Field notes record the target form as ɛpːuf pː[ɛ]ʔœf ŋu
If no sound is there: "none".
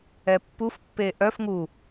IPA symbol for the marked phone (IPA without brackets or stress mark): e